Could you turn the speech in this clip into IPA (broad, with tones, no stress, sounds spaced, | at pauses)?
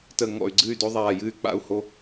t ə˧˩ ŋ ɔ̰˧˩ y̯ ɡ͡ǀ ɨ˥˨ y̯ d o˦ ðˤ aː˧˩ j ɨ˥˨ y̯ k͡p a̰˥˨ u̯ h o˦